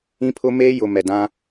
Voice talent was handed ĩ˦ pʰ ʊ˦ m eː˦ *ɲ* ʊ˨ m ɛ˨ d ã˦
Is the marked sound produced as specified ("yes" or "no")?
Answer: no